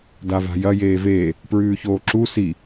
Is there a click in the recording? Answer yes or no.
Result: yes